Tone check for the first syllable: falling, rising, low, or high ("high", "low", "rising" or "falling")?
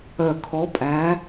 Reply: low